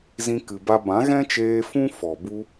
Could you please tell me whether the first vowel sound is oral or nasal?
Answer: nasal